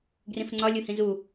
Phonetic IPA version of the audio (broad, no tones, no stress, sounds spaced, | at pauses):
ɡ r ĩ f ŋ͡ǀ ɒ lʲ u h ĩ z u